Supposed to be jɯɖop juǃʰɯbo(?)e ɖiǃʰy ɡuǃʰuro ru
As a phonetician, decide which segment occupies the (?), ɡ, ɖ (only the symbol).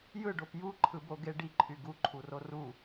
ɡ